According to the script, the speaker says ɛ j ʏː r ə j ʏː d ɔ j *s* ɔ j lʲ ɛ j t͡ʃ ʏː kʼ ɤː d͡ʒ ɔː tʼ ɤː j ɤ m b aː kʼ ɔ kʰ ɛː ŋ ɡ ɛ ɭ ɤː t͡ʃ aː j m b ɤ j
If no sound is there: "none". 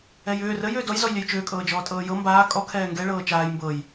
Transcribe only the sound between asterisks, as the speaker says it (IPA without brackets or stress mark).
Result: z